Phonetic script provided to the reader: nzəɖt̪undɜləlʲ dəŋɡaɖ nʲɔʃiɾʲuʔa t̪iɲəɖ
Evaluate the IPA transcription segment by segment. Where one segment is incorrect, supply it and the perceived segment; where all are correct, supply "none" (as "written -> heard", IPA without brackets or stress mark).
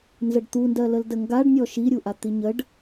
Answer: lʲ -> l